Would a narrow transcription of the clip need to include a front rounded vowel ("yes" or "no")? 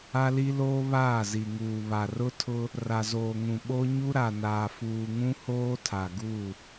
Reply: no